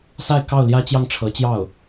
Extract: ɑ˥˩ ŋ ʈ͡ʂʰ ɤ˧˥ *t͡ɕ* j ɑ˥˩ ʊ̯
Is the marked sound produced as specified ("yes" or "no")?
yes